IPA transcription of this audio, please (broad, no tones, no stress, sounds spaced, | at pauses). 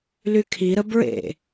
l y kʰ i ɾ ə b ɹ ḛ